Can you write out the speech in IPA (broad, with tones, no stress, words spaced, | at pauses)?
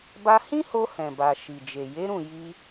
ba˧hĩ˦ho˧ hɛ̃˨ba˨ ʃi˨d͡ʒe˨ je˨˦ɾũ˦˨ ji˧